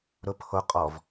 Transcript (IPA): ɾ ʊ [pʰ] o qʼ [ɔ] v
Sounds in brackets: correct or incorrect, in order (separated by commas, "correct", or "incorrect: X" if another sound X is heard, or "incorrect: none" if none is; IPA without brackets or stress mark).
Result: correct, correct